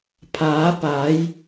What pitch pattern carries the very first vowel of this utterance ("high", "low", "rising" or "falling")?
rising